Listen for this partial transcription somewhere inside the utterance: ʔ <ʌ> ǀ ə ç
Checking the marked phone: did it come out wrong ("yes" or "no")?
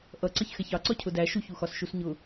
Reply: no